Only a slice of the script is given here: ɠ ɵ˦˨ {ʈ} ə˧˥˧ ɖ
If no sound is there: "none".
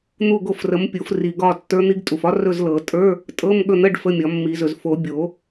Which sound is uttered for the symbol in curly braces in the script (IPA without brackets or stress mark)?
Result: n̪